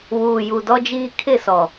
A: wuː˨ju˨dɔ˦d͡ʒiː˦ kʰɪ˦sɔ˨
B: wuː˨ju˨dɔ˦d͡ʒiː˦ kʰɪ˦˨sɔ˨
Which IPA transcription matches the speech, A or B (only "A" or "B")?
B